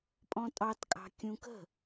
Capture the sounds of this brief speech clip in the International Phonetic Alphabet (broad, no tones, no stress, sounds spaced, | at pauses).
pʼ ɔ̃ tʼ ɑ t kʼ ɑ̤ kʲ ũ k ə̤